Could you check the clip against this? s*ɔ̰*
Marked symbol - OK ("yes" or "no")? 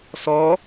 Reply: no